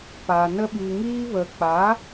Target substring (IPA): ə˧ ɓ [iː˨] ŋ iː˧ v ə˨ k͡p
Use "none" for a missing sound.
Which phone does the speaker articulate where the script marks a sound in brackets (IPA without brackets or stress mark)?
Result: i˨